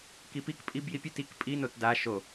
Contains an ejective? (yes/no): yes